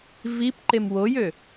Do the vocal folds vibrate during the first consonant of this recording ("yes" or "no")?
yes